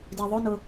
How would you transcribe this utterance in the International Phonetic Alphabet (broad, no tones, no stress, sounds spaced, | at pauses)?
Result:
d ɪː ðˤ ʊ n ʊ